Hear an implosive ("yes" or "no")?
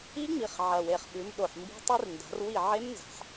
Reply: yes